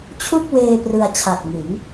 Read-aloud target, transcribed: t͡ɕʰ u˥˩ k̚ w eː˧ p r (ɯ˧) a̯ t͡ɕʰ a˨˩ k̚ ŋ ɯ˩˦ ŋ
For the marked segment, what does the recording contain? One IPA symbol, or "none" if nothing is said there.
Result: ɯ˧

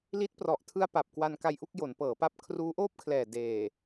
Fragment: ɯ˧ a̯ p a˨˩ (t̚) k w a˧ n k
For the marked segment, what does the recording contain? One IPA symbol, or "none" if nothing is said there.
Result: p̚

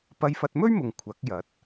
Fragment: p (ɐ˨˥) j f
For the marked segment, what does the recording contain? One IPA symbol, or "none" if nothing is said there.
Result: ɐ˧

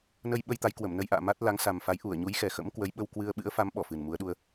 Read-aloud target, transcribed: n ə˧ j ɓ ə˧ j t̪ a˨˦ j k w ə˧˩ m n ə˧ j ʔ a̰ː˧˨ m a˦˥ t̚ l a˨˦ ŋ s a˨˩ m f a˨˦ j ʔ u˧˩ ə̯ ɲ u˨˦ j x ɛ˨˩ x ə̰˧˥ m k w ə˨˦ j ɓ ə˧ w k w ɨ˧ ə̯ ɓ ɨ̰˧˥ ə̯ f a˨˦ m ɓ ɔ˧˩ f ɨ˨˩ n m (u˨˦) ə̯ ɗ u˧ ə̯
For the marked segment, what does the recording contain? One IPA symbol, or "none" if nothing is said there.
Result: u˨˦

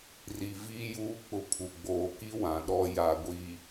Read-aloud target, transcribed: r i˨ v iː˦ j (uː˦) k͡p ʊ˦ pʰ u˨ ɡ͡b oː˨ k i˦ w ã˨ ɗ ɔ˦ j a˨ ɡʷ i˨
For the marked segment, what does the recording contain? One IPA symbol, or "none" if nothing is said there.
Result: uː˦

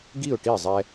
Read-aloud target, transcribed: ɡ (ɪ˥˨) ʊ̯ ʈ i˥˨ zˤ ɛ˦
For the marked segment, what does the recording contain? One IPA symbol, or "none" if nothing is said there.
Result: i˥˨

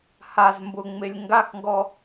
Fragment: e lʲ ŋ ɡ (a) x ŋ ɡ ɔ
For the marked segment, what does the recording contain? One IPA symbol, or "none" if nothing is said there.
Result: a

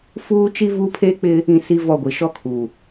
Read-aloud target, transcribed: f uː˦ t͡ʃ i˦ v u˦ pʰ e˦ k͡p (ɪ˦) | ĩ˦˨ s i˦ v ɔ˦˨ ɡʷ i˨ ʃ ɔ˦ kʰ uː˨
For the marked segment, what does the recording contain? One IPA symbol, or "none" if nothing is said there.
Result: ɪ˦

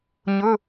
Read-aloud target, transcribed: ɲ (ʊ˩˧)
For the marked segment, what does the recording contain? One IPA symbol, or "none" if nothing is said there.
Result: ʊ˩˧˩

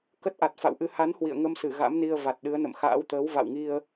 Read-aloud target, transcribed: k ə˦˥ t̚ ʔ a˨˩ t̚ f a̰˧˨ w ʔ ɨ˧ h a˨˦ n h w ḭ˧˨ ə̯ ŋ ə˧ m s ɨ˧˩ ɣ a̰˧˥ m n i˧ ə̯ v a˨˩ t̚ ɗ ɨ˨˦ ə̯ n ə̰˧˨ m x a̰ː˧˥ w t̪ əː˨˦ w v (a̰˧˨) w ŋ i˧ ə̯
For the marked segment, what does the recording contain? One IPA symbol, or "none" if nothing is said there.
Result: a̰˧˨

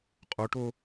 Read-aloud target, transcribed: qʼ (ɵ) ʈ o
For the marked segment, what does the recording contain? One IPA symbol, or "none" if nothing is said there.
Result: o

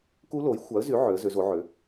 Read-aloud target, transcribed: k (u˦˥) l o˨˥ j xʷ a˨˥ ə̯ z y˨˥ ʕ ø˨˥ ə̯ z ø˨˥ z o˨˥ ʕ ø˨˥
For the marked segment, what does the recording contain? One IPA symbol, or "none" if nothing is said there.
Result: u˦˥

